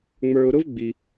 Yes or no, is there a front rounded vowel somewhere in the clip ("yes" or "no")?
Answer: no